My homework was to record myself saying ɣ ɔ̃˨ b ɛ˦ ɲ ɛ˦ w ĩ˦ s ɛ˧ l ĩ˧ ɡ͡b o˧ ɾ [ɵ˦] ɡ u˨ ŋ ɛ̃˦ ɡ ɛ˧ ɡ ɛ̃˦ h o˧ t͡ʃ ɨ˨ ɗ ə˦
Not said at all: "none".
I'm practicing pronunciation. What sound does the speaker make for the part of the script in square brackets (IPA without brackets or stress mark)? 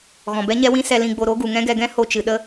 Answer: o˦